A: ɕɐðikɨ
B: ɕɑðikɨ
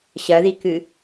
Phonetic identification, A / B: A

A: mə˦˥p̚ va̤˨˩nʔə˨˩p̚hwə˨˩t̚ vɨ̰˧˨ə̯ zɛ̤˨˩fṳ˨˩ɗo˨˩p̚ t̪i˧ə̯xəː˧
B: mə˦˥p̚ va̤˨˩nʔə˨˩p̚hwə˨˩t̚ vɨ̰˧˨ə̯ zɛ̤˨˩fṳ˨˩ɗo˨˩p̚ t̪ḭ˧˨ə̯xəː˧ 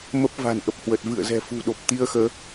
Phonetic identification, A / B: A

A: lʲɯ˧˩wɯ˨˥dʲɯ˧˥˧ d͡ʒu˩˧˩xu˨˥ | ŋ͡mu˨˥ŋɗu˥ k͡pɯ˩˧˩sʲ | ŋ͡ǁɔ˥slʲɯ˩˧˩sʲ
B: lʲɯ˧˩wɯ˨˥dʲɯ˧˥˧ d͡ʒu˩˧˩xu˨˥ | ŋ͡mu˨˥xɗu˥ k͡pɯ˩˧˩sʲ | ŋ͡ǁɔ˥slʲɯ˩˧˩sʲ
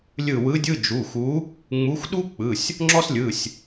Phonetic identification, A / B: B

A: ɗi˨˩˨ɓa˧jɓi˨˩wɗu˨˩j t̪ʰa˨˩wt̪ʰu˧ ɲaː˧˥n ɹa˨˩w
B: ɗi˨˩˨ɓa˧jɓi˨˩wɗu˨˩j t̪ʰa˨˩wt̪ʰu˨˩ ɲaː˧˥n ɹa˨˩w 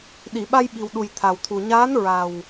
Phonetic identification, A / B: B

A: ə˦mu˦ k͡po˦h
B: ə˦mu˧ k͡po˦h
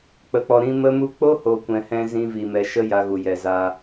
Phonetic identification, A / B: A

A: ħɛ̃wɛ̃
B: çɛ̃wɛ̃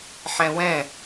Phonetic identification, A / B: A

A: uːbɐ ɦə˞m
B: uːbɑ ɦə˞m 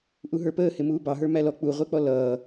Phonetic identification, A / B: B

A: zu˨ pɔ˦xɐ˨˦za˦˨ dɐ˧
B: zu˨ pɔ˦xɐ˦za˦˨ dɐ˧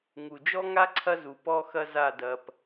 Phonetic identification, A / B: B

